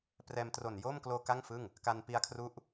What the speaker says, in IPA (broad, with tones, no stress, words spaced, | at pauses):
prɛː˧m tro˨˩njo˥˩mkloː˧ ka˥˩ŋfɯ˥˩ŋ | ka˧n pi˧a̯kʰru˦˥ʔ